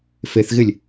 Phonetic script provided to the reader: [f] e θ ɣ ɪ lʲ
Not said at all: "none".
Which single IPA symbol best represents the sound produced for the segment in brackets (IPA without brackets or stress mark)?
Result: f